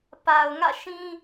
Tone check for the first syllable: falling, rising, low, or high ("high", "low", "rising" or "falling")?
low